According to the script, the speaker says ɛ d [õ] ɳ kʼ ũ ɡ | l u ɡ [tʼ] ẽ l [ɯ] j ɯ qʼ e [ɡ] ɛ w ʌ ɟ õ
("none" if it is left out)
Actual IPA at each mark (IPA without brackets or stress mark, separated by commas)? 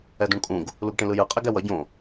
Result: ũ, ʈ, ɯ, ɡ